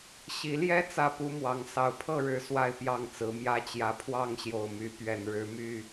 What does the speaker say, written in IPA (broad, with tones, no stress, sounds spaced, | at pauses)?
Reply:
ɕ i˨˦ l j ɛ˦ t͡s ä˥˨ p u˦ m w ɑ˨˦ ŋ s ɑ˨˩ ʊ̯ pʰ ɤ˥˨ ɻ ɻ̩˨˦ s w a˥˨ ɪ̯ p j ɑ˥˨ ŋ t͡s ɹ̩˨˦ m j ä˦ t͡ɕ j ä˨˦ pʰ w ɑ˥˨ ŋ ɕ j o˨˩ ʊ̯ m y˨˦ p ɥ ɛ˨˩ n ɻ ɻ̩˨˦ m y˥˨